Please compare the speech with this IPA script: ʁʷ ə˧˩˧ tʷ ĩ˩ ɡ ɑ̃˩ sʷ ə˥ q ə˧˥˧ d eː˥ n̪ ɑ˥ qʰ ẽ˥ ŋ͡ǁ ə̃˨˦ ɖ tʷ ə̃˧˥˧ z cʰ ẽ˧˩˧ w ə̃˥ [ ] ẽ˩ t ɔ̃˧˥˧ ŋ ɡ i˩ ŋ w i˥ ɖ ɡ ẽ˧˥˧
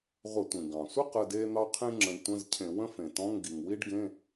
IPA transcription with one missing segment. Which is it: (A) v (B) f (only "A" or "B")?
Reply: B